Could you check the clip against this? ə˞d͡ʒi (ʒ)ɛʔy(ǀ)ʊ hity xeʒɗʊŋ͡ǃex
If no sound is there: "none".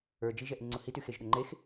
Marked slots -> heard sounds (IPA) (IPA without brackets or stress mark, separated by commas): ʒ, ŋ͡ǀ